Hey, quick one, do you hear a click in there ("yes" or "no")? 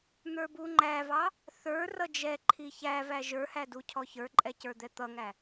yes